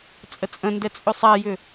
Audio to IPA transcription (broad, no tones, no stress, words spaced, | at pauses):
t͡sʼət͡sʼə̃ndɛ t͡sʼʏsˤajʏ